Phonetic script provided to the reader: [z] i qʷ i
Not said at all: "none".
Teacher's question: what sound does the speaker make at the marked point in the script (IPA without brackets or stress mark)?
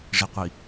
ʐ